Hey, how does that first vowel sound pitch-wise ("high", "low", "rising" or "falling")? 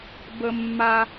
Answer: high